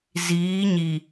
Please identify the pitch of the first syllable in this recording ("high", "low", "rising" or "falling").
rising